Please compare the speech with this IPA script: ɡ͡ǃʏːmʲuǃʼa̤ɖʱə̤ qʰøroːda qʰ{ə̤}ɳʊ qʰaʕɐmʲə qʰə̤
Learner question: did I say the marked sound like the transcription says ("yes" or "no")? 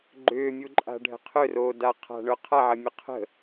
no